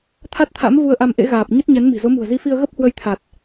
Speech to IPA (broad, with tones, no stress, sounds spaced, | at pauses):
t̪ʰ a˦˥ t̚ t̪ʰ a̰˧˥ m v u˧ ə̯ ʔ a˧ m ʔ ḛ˧˥ ɣ aː˨˩ p̚ ɲ ə˦˥ t̚ ɲ ɛ˨˦ n m i̤˨˩ z o˨˦ m ṳ˨˩ ə̯ z i˧ f i˧ ə̯ ɣ ə˦˥ p̚ h w ə˧ j t̪ʰ a˨˩ t̚